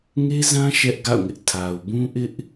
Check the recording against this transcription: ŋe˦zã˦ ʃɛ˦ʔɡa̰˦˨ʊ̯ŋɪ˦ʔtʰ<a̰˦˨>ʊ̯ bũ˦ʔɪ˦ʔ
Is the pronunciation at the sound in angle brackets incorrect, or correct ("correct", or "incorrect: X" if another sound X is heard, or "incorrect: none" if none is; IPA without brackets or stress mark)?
incorrect: a˨